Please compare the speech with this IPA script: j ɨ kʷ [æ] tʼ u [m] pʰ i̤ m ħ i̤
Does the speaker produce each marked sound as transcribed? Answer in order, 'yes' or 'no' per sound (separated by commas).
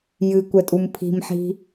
no, yes